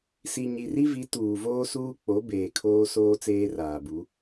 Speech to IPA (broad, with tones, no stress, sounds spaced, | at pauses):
s i˨ ɲ i˨ r i˦ v i˨˦ t uː˨ v oː˦ s uː˦ k͡p o˨˦ b eː˨ kʰ oː˦ s oː˦ t͡s eː˦ r aː˨ b u˨˦